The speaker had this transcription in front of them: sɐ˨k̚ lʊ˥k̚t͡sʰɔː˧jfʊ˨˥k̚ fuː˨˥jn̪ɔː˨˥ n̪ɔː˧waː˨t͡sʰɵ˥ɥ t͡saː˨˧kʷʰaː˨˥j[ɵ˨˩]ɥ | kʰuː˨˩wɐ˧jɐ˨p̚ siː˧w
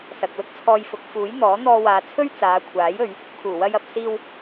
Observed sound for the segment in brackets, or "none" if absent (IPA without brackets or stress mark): ɵ˨˧